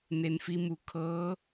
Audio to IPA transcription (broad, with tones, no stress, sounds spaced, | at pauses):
n e˩ n f i˧ m u˩˧ kʰ ɤː˧˥